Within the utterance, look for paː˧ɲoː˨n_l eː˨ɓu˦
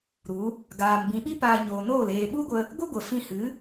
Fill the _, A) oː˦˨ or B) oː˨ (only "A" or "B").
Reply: A